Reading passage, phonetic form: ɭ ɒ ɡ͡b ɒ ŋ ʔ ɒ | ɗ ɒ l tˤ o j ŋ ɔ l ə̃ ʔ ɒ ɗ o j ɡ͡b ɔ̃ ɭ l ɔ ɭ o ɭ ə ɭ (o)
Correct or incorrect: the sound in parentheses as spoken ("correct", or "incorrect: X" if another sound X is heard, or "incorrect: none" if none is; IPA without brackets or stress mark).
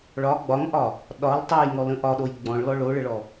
incorrect: ɔ